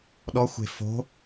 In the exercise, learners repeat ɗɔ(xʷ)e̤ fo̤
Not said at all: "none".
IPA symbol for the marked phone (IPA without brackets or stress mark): xʷ